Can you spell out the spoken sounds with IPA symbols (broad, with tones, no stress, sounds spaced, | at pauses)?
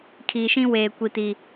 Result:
kʰ iː˨ ʃ ĩ˦ w eː˨ kʷ i˨ t i˨